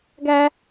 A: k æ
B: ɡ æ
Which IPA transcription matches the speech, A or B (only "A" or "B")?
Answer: B